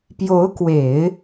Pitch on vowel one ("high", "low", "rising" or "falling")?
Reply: rising